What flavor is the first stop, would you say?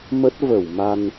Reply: plain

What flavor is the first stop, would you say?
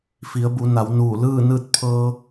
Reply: plain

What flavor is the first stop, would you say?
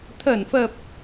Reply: aspirated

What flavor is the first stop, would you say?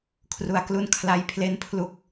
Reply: aspirated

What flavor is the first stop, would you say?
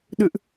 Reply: implosive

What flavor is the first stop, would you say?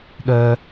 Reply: implosive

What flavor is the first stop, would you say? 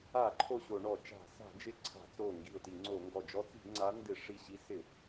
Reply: click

